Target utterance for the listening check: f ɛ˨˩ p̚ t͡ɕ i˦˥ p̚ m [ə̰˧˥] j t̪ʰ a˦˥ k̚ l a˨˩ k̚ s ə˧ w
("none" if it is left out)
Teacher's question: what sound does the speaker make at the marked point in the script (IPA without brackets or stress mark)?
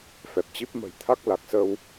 ə̤˨˩